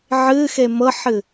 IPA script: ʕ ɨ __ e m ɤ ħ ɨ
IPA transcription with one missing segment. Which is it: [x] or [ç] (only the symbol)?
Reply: x